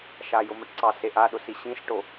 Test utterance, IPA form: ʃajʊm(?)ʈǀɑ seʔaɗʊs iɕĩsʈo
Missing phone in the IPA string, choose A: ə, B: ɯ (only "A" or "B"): A